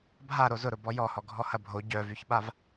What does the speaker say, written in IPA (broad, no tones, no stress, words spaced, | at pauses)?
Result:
bʱa ɾozʊɾʊ bɔjɔhɔ ɡʱɔhɐbʱo ɟœvyçɓav